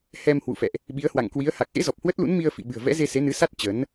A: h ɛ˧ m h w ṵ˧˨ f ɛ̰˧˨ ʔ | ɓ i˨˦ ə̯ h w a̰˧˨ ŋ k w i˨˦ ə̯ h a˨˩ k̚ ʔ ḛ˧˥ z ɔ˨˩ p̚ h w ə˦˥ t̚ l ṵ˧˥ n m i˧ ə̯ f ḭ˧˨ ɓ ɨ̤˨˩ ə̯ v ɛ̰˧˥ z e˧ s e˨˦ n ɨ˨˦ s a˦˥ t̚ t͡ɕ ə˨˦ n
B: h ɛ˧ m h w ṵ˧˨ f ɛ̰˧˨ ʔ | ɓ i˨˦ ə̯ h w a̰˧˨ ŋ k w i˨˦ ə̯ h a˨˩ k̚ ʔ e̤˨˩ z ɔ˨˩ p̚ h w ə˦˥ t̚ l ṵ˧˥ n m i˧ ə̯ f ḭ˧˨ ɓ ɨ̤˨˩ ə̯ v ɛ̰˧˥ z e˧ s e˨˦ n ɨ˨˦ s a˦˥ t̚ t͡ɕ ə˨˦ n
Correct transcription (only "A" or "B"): A